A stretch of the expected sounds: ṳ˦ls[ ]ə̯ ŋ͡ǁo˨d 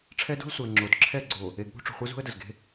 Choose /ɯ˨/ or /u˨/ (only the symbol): u˨